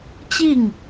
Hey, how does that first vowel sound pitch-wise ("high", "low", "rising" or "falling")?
falling